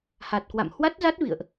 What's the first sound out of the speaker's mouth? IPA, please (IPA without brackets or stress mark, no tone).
h